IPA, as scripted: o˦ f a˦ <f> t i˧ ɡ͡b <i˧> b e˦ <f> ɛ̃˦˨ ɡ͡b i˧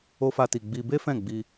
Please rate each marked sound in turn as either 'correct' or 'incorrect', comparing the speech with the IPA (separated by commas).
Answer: incorrect, correct, correct